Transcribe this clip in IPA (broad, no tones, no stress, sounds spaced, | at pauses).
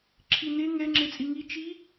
ǁʰ i n e ŋ ɛ ŋ͡ǁ e t͡sʼ i ŋ i t͡ʃ i